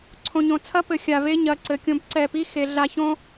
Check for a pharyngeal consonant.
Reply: absent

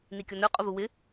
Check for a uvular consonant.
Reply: present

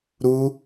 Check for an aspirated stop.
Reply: absent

